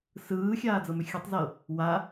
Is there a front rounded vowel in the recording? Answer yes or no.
yes